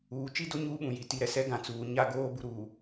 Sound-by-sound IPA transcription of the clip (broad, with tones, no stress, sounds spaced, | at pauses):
uː˨ t͡ʃ i˦ d o˦ ɲ uː˦ ɓ ũ˨ j i˨ t i˨ ɾ ɛ˨ s ɛ˦ ɡ ã˨ t͡s uː˨ ɲ a˦ ɡ oː˦ b u˨ ɾ u˨